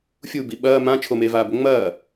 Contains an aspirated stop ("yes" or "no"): yes